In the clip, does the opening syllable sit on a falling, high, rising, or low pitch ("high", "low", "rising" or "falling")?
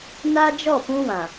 high